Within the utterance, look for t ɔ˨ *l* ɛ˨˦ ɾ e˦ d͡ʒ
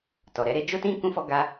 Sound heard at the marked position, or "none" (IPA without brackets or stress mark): ɾ